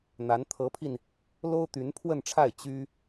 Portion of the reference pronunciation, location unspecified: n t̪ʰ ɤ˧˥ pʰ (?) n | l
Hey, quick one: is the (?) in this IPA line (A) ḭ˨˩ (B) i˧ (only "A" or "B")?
B